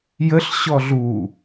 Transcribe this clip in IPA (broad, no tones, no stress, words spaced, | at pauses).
jəɬ ɕɔɮu